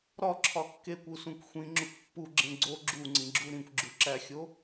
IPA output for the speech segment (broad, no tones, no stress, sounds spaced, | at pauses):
ɾ ɒ ǁʰ ɒ kː e kʷ u s ũ kʷ xʷ ĩ ŋ͡ǁ u kʷ pː u ɡ͡ǁ ẽ ɡ͡ǀ o ɡ͡ǁ u ŋ͡ǀ ĩ ɡ͡ǁ u ɾ ĩ kʷ ɡ͡ǁ u ǁ æ xʲ o